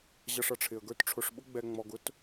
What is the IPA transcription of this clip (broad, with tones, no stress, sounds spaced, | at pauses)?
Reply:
ʑ ʌ˨ ʂ ʌ˩ ʈ͡ʂʰ ɪ˩ ə̯ ɡ ə˞˦ t ʈ͡ʂʰ ʊ˨ ʂ ɓ ʊ˥ ɡ͡b ɛ˨ ŋ͡m ɔ˨ ɡ ʊ˥ t